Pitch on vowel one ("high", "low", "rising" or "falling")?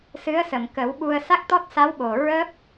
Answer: rising